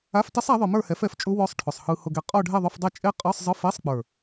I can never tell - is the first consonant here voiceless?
yes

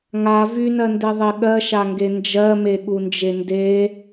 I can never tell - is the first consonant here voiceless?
no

